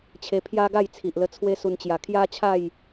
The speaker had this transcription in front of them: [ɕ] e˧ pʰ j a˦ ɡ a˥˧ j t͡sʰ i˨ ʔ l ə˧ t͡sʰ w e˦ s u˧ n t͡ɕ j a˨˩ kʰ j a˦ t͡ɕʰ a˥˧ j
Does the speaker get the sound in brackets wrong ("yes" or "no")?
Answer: yes